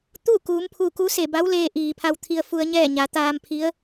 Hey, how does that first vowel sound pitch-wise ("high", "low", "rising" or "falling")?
falling